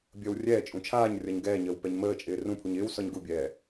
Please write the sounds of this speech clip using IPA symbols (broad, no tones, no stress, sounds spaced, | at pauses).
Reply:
bʲ əː w rʲ ɛː t͡ʃʼ ũ t͡ʃʰ aː ɲ rʲ ɒ ɲ ɡ ɛː ɲ əː w p ɛ ɲ m əː t͡ʃʼ ɪː r ũ pʰ u ɲ ɪː w s ɒ ɲ ɡ u bʲ ɛː